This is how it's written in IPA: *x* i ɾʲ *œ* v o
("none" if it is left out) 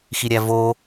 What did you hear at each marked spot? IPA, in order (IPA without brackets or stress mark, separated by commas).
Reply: x, æ